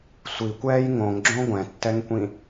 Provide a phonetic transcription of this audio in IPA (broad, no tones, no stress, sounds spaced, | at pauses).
sʷ i kʷ ɛː j ŋ õ ŋ ɡ͡ǁ õ ɡʷ ɛ̃ tː ɛ ŋ kʷ ĩ